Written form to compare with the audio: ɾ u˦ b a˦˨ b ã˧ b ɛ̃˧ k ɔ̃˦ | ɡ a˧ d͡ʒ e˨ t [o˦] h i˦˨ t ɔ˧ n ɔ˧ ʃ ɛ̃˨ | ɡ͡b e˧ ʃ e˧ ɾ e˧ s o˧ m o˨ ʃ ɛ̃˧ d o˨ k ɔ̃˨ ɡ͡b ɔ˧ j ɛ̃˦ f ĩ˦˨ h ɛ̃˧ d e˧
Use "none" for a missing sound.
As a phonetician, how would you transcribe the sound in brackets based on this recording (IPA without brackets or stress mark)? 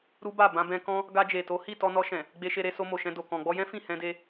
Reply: o˨˦